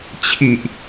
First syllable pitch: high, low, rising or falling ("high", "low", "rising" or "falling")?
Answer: low